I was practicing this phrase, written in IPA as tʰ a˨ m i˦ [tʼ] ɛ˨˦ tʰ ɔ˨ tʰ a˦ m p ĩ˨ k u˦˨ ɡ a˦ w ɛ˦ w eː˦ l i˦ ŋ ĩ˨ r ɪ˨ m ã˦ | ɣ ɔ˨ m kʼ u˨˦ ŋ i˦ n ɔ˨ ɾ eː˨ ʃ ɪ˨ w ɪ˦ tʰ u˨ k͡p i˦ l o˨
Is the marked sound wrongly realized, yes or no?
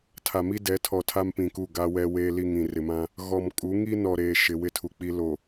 yes